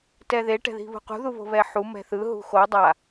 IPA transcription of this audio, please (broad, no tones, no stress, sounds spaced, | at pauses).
t ɛ ð e ʈ ɛ̤ ð i̤ β ṳ q ṳ ð u β o̤ β ɛ ħ u m ɛ̤ θ ɯ ɦ ṳ x o dˤ a